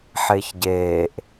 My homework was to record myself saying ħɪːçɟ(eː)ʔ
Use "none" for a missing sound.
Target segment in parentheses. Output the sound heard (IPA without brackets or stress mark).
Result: eː